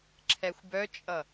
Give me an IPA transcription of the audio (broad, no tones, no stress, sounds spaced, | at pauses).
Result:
ǁʰ ɛ xʷ b œ t͡ʃʼ ʌ